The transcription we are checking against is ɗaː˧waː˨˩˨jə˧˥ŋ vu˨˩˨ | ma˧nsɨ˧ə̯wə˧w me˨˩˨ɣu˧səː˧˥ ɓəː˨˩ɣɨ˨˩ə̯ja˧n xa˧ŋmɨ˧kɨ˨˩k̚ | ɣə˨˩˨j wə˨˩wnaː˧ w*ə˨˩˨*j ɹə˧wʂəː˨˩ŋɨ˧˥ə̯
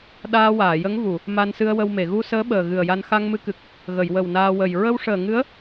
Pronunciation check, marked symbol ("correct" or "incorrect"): incorrect